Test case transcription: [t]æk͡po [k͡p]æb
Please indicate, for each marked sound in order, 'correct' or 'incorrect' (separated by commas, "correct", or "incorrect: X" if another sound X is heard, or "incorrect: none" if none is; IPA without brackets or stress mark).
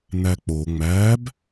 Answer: incorrect: n, incorrect: ŋ͡m